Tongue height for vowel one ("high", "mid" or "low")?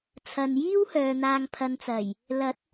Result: low